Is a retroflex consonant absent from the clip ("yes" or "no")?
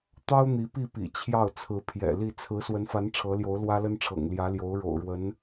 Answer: no